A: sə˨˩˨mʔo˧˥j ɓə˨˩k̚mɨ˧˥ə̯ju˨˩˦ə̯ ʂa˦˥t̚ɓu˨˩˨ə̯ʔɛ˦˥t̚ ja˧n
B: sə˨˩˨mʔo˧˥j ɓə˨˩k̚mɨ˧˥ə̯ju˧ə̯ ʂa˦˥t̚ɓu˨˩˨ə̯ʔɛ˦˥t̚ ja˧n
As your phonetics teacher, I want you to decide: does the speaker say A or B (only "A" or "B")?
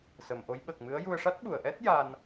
B